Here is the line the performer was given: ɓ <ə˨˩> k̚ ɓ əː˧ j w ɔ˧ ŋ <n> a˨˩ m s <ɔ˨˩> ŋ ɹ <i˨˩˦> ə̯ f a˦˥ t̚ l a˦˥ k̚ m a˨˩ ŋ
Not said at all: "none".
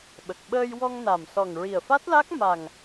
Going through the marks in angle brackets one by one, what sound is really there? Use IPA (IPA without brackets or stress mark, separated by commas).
ə˨˩, n, ɔ˨˩, i˨˩